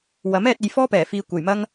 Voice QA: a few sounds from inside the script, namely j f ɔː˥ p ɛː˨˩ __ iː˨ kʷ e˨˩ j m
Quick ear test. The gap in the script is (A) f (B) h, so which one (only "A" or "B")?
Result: A